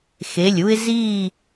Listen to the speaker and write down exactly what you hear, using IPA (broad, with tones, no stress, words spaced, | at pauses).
xe˩˧˩lʲu˦ɪ̯ ziː˦˨